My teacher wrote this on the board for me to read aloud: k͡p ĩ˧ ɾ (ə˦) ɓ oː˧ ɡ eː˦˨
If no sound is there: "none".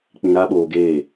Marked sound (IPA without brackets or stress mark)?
a˦